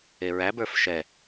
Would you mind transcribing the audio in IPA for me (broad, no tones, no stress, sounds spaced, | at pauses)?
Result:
e ɹ æ b ə˞ f ʃ ɛ